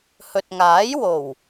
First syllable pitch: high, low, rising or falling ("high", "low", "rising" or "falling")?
low